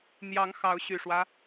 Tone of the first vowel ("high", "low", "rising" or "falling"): rising